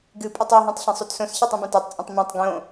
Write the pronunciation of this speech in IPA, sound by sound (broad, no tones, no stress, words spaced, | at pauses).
ɡɨpʼɨtˤ iɦũtˤ ɬẽsˤutsõsçatˤ ũbãtatˤt͡sʼõtˤ mẽtˤ ɡõ